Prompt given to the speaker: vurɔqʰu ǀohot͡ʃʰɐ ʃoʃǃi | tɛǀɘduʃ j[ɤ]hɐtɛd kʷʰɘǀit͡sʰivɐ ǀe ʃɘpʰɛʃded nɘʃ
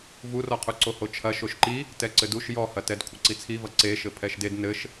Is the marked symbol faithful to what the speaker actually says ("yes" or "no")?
no